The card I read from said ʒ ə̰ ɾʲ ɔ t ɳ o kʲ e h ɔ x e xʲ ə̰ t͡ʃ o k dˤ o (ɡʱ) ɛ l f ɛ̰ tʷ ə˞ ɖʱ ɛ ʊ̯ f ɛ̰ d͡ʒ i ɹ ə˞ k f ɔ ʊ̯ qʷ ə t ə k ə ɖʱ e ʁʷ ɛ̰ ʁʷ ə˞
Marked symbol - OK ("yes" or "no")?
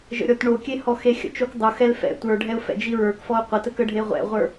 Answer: no